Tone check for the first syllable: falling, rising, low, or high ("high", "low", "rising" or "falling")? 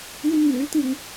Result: high